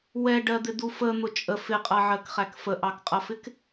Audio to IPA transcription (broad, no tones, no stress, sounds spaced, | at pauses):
w ɛ ɖ ɜ d̪ ɪ d̪ u f ə n̪ ʊ t͡ʃʼ ə f ɪ qʼ ʌ ʕ ɜ k χ æ k f ə ʔ ɑ k qʼ ʌ f ɪ k